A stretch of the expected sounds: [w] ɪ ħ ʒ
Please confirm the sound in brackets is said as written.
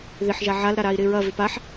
no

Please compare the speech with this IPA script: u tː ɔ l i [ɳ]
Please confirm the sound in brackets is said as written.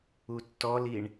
yes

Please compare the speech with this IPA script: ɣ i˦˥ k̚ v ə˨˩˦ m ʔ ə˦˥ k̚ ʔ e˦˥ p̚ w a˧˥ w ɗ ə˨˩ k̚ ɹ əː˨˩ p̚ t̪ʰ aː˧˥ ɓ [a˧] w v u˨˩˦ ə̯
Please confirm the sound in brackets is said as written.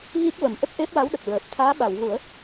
no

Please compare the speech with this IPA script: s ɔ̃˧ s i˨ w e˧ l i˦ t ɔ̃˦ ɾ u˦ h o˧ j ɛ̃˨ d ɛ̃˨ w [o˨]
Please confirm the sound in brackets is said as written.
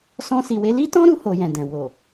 yes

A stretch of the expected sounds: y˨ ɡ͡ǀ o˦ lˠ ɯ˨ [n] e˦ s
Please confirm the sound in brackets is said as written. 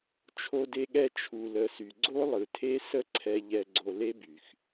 no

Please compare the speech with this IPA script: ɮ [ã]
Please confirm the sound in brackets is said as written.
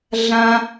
yes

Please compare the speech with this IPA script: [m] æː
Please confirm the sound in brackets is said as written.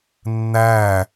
no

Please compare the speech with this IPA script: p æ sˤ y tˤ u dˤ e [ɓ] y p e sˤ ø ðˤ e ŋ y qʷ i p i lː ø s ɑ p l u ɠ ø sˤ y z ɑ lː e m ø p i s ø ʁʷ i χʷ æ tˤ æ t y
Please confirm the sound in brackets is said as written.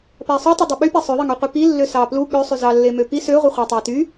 yes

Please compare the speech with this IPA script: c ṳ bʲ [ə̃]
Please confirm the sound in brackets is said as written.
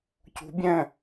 no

